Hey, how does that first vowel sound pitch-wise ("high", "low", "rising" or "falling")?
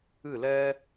falling